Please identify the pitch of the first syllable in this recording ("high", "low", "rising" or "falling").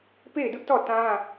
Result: falling